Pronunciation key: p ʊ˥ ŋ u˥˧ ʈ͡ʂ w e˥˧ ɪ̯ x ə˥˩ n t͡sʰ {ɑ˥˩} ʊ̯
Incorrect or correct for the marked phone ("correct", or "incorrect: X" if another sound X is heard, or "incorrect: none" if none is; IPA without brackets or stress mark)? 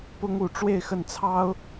incorrect: ɑ˥